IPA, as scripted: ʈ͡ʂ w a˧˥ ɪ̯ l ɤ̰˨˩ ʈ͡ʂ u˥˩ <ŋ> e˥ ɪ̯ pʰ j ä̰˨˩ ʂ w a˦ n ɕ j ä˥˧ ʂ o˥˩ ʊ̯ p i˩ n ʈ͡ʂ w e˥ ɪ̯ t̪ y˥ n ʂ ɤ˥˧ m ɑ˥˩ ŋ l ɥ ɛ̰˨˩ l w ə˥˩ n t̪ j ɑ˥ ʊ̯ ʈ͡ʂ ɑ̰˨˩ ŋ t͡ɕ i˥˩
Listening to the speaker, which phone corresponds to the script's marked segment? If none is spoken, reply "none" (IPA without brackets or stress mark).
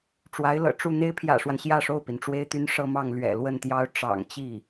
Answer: n̪